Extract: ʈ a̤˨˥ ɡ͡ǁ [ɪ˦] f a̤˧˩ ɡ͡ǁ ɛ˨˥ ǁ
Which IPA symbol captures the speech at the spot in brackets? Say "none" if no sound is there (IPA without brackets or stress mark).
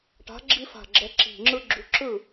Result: i˦